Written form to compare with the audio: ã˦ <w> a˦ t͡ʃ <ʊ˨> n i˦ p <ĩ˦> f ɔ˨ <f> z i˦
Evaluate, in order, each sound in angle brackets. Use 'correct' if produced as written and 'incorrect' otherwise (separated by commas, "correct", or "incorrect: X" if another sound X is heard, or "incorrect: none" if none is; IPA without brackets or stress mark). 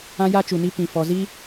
incorrect: j, incorrect: u˨, incorrect: ĩ˨, incorrect: none